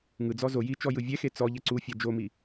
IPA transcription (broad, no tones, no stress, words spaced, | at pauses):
ŋɯd͡zɔ zo jit͡ʃɔ jɯvʲɛxe t͡sɔʎɛ ǀufʲa d͡ʒomi